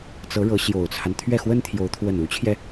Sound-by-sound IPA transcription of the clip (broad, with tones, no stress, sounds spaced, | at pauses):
t͡s ɤ˧˥ ɻ ɤ˧˥ ɕ j o˨˩ ʊ̯ t͡sʰ a˦ n t̪ʰ ɥ ɛ˥˩ x w ə˥ n t̪ʰ j o˧˥ ʊ̯ t̪ʰ w ə˥˩ n u˧˥ t͡ɕʰ j ɛ˧